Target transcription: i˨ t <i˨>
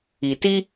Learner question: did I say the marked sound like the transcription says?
no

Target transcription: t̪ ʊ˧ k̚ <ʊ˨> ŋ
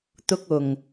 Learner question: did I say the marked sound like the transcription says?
yes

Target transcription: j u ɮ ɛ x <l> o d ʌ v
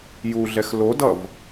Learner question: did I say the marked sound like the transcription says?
yes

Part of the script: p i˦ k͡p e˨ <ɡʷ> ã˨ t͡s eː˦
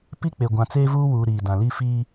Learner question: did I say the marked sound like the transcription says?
yes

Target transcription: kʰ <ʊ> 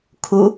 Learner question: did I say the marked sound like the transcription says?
no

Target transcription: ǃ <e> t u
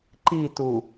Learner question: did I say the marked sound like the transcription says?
no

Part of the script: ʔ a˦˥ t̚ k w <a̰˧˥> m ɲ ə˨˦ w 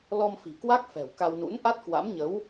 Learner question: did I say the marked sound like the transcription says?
yes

